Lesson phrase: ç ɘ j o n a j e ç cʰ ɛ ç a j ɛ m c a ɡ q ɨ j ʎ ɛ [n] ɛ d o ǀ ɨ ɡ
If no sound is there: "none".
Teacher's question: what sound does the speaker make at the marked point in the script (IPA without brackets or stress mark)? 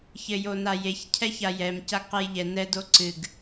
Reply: n